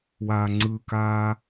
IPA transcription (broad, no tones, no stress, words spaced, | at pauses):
waːŋ͡ǀɯkaː